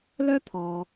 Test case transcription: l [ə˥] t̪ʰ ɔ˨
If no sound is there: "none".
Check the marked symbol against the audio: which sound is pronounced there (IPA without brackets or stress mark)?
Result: œ˥